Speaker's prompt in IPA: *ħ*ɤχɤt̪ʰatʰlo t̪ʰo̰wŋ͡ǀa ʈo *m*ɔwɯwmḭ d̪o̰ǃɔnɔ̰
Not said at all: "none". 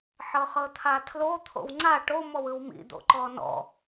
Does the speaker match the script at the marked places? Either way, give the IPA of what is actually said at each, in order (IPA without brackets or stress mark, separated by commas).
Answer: ħ, m